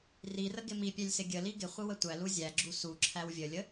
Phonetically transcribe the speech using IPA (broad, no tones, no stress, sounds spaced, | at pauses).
r i r ə ɡ ɪ m i pʲ æ lʲ s ɪ ɡʲ ə l i ɡ ɪ χʷ ɪ w ə tʷ æ l u zʲ æ ɡ͡ǁ u s u ǁʰ æ w vʲ ə lʲ ə